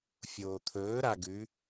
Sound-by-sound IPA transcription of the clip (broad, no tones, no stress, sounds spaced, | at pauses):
fʲ oː t̪ʰ ɵː ɾ a ɡ ʉ